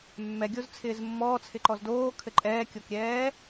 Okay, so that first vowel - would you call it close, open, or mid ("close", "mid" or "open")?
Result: mid